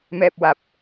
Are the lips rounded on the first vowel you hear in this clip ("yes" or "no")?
no